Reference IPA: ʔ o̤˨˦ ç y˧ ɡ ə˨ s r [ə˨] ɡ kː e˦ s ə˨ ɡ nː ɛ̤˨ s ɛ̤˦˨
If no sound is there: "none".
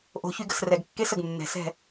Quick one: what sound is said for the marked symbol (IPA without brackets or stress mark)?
ɛ˨